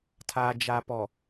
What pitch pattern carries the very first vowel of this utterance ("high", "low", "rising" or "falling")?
low